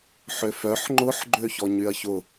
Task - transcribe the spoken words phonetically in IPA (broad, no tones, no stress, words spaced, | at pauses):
ħøfœħ ŋ͡ǃʊħ ɡ͡ǃøçɔɲyɐ̯çʊ